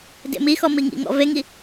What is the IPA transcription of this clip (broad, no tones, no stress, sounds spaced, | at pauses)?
d ḛ m i x ɔ m i ŋ ḭ ŋ ɔ̰ v e ŋ i